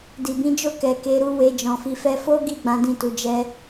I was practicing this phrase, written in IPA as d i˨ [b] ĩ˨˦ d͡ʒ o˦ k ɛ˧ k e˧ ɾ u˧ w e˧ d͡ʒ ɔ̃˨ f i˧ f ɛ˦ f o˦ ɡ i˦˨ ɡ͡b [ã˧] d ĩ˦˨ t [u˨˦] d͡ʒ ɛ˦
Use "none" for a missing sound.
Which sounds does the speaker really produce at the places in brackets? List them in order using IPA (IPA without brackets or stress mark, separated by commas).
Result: b, ã˨˦, u˨˦